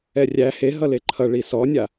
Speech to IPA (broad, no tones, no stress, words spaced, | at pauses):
ɛrʲæ heɦʌ leǃʰʌ ɭisɔnʲa